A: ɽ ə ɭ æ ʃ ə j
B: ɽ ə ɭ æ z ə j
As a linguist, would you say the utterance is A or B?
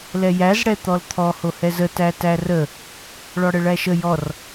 A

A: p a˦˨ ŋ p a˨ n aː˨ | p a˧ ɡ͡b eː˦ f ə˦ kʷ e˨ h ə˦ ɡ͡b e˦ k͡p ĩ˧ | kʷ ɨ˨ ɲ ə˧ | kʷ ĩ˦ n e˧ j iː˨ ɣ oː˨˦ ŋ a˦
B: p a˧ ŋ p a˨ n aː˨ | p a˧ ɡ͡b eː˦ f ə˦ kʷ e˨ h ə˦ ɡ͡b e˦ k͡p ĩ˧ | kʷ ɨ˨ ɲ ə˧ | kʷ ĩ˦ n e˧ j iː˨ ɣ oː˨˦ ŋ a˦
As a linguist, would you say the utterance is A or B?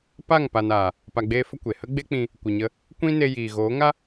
A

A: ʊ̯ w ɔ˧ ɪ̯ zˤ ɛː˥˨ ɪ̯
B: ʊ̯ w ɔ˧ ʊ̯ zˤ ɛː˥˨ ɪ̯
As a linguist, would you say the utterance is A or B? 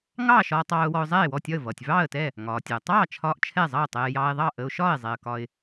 B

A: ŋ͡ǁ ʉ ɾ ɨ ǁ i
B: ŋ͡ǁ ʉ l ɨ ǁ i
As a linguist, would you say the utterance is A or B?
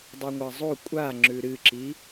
A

